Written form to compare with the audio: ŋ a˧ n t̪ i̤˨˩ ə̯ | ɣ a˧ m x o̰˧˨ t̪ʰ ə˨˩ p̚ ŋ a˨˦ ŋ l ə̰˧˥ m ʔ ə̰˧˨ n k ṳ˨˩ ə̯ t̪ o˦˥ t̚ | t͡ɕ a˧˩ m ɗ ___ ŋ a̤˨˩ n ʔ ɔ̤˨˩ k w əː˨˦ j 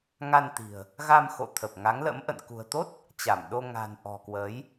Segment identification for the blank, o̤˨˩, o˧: o˧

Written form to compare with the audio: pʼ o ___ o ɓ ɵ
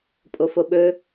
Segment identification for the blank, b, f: f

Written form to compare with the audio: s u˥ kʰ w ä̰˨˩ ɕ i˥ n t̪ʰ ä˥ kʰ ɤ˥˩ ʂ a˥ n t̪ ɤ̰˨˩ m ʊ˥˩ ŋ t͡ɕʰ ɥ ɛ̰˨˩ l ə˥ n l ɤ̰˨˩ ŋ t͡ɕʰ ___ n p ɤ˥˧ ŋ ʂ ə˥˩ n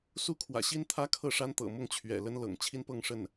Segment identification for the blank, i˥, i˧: i˥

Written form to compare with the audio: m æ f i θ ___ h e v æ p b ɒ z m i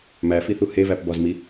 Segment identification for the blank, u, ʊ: u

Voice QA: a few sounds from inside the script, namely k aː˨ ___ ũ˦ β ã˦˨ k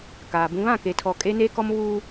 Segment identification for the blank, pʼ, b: b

